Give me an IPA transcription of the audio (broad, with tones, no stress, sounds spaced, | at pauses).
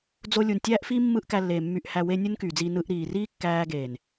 d͡z o˦ lʲ u˨ n tʲ æː˦ ʔ f iː˦ mː ɯ˦ ʔ k æ˧ lː eː˨ mː y˨ ʔ h æ˨ w e˧ nʲ u˦ n k yː˨ d͡z iː˧ n ɯ˧ ʔ ɾ iː˨ r iː˦ kː æː˧ ɡ eː˨ n